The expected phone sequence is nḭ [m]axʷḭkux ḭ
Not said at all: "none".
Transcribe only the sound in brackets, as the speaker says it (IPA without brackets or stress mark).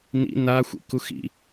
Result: n